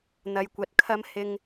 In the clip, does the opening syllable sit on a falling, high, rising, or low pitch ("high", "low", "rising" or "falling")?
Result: low